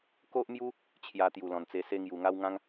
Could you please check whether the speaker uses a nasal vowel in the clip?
yes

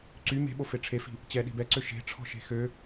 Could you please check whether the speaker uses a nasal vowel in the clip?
no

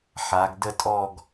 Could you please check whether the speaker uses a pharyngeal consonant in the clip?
yes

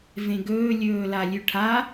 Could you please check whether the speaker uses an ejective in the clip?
no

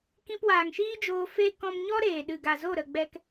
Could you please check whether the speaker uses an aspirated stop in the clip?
no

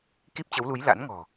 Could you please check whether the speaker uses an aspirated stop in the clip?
no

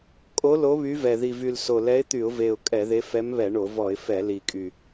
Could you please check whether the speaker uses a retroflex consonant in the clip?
yes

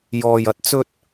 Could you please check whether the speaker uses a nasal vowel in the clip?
no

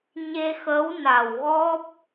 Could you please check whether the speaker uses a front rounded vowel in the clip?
no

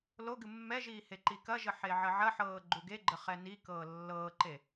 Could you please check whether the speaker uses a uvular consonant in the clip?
yes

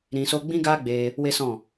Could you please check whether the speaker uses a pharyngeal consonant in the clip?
no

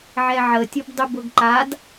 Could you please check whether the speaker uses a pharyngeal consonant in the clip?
yes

